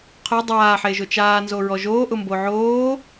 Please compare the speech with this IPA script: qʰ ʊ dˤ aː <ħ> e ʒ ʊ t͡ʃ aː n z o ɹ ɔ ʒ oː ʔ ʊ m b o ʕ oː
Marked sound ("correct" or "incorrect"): correct